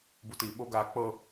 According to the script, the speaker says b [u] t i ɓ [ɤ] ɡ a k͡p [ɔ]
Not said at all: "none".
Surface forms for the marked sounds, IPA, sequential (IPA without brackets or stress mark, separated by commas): u, o, ɤ